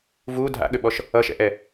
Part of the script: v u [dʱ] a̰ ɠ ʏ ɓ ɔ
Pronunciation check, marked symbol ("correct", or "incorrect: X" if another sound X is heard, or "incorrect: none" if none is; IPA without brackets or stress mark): correct